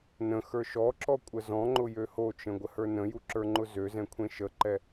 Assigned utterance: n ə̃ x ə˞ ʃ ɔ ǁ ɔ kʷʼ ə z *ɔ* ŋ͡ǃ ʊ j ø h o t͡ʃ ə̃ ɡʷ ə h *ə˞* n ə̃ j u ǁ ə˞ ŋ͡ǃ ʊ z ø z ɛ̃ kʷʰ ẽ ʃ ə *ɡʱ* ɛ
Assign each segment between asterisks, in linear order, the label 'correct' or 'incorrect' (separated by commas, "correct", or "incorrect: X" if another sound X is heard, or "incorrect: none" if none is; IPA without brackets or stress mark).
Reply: incorrect: ɔ̃, correct, incorrect: ǃ